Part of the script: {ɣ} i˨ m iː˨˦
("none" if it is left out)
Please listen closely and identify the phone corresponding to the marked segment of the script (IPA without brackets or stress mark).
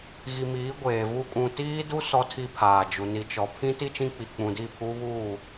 ɣ